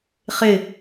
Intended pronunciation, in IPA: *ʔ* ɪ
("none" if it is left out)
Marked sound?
χ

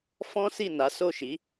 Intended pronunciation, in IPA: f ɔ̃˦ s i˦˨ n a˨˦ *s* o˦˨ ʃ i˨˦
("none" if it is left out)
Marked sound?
s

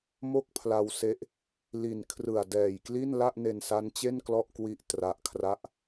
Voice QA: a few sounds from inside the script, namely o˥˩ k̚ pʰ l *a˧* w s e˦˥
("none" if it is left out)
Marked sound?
a˧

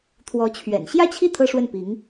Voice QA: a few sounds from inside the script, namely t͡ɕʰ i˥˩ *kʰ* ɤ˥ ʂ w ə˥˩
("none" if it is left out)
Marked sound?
t̪ʰ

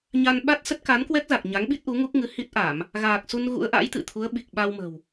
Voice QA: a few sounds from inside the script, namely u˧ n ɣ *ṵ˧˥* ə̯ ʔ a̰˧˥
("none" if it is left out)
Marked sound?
ṵ˧˥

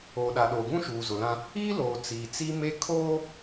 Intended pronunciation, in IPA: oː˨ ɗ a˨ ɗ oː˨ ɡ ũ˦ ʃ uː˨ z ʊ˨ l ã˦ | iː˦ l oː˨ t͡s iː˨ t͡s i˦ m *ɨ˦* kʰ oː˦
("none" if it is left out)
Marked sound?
e˦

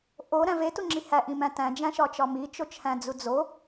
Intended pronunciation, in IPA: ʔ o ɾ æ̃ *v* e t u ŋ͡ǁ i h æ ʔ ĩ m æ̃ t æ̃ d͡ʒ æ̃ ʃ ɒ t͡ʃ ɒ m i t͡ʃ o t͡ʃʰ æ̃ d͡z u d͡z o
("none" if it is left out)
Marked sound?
v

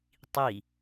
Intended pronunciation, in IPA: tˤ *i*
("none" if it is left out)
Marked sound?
i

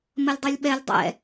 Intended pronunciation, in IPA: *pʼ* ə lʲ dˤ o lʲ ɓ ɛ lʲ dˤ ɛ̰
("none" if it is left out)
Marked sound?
m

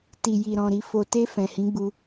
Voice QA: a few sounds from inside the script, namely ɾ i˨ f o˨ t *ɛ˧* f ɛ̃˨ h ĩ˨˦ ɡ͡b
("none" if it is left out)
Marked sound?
e˧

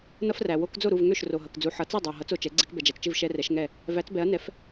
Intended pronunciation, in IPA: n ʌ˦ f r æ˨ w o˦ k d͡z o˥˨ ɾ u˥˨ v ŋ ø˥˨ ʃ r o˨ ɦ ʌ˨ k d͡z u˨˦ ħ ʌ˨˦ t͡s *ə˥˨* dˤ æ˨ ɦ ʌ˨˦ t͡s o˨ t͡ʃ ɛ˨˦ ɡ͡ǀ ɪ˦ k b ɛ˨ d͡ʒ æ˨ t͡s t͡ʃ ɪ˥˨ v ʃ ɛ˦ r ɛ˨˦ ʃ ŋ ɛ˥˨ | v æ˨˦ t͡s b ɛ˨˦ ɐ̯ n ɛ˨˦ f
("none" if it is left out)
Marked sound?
ɛ˥˨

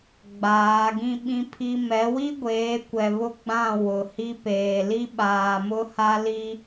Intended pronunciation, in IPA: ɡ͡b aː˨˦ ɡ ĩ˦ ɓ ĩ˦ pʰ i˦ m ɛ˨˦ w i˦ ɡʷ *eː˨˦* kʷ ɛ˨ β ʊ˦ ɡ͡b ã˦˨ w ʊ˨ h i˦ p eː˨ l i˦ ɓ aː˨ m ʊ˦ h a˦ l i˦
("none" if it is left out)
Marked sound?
eː˨˦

